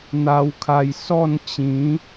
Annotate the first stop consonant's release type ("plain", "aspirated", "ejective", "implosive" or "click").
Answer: aspirated